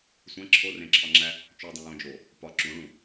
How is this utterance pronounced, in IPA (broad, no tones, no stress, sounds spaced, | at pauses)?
sʷ æ̃ ǁʰ o r ẽ ǁʰ ɒ ŋ͡ǁ æ | t͡ʃ u dˤ ĩ j õ d͡ʒ o | p ɒ ǁ ũ ɭ ũ